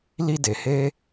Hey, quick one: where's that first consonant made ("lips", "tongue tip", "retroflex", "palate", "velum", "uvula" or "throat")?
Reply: tongue tip